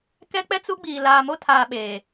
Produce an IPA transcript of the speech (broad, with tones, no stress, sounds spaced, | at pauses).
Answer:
k ɛ˦ k͡p ɛ˦ t͡s u˦ ɡ͡b iː˨ l aː˨ m o˦ tʰ aː˨ ɓ eː˨